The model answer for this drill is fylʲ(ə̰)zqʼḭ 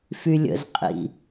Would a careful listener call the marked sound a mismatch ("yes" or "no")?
no